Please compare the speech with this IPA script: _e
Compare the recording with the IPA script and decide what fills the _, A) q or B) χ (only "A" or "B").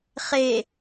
B